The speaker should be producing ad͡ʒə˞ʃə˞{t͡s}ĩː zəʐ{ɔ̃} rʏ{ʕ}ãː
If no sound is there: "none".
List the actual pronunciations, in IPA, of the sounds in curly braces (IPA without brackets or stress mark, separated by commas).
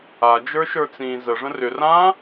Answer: t͡s, ə̃, r